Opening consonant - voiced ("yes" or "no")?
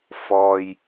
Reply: no